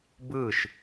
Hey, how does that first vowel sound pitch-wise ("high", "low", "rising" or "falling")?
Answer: falling